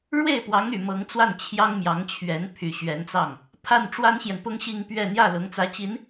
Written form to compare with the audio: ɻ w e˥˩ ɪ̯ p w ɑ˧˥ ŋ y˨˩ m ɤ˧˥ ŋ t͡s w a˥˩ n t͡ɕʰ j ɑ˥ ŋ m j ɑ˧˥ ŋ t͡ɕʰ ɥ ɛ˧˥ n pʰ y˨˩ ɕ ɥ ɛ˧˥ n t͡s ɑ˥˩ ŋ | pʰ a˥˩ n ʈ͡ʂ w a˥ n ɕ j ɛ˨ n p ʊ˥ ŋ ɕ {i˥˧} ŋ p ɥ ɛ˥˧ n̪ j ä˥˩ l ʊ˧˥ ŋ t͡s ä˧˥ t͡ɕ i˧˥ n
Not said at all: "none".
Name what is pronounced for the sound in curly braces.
i˥˧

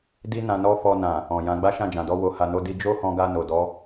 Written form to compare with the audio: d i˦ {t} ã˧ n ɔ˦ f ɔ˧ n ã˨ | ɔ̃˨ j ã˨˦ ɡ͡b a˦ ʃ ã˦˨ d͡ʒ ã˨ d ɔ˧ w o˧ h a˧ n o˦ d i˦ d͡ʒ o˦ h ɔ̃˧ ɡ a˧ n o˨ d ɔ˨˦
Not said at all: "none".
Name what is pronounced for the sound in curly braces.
n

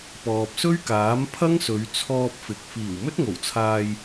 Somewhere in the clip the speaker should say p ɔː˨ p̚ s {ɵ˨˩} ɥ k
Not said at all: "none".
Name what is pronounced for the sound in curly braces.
ɵ˥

